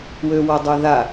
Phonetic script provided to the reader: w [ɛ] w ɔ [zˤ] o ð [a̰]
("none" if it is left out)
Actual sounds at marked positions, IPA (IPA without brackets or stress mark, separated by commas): ø, dˤ, a